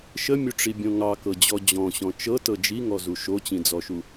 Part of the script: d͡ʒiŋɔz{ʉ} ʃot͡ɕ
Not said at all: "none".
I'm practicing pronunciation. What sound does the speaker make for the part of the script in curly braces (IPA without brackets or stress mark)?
u